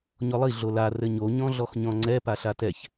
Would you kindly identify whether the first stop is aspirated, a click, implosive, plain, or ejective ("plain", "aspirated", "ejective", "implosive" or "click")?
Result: click